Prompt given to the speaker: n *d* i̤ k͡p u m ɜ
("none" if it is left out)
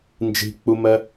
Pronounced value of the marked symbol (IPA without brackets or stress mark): d͡ʒ